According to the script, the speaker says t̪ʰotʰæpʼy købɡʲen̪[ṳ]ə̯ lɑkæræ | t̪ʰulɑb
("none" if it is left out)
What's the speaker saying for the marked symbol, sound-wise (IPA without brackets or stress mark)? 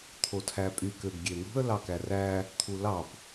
ṳ